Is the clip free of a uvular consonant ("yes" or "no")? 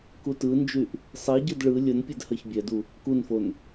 yes